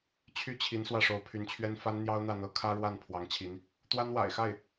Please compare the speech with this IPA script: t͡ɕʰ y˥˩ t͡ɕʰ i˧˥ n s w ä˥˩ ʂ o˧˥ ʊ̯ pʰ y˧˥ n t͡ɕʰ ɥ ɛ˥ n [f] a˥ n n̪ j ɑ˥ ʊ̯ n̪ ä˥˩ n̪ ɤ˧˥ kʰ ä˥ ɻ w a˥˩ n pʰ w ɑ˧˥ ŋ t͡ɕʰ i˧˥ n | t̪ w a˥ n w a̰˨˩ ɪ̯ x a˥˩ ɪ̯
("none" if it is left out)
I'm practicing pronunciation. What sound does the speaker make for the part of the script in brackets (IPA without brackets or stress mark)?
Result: f